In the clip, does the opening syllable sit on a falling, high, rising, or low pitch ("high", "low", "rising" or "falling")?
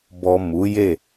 low